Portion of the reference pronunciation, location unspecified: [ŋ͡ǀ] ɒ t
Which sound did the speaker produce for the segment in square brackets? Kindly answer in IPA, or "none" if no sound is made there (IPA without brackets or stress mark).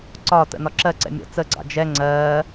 ǀ